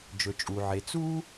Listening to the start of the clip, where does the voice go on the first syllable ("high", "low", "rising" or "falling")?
low